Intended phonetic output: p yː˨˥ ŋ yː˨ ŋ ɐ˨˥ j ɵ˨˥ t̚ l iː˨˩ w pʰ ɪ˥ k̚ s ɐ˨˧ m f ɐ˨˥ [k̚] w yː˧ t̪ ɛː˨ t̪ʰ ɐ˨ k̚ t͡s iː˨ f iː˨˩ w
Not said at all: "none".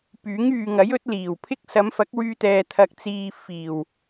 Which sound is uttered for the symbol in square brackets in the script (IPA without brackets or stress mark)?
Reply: k̚